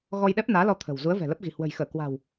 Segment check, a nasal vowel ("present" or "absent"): absent